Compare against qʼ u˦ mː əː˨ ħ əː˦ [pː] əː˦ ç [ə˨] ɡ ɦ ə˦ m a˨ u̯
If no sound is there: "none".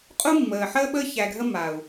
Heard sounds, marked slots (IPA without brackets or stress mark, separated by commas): ɓ, æ˨